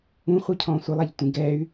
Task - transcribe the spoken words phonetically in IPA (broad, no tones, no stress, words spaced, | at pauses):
ũχʷicʰɔ̃ː sʷɪlˠaʎtʷĩ ɡɛy̯